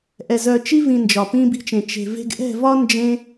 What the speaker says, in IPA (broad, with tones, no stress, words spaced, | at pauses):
ʔɛ˨zœ˨t͡ʃi˧vĩ˨ nd͡ʒɒ˨pĩ˧bi̤˧t͡ʃẽ˨ t͡ʃe̤˨ve̤˧ɡ ʔɛ̤˦˨vɒ˦nd͡ʒẽ˧